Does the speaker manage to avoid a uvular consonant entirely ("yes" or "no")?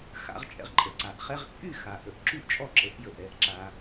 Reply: no